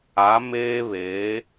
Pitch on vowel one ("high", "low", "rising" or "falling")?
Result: rising